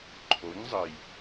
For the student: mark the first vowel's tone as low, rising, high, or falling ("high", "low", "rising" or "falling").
rising